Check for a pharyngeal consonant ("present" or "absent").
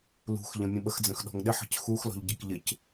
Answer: present